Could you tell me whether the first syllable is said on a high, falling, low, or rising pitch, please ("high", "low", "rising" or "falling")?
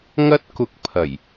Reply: high